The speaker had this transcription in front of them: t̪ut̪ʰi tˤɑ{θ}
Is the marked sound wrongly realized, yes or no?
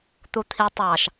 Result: yes